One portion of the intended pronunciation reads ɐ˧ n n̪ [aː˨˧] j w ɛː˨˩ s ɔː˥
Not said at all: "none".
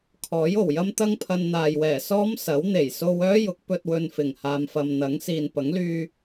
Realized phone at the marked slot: aː˨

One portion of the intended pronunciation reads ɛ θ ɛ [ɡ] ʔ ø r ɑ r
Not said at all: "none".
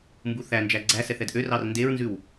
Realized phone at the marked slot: d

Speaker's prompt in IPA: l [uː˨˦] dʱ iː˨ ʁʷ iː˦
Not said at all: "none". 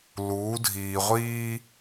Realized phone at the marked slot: uː˨˦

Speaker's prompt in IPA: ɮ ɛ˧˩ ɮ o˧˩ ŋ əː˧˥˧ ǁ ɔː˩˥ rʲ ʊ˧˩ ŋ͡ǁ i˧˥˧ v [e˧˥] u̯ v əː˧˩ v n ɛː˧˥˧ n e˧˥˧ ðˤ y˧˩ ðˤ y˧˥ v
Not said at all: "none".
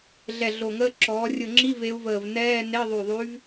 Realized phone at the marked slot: e˧˥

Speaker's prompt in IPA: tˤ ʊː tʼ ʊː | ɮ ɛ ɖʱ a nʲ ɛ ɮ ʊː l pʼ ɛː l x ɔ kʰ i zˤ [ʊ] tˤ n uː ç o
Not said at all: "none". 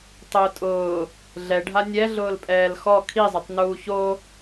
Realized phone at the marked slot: ʊ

